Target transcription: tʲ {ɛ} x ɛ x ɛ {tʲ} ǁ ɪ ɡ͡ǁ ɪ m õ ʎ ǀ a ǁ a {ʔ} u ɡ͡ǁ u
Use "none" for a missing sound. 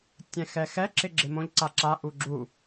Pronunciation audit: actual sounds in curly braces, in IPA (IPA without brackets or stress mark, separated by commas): ɛ̃, none, ʔ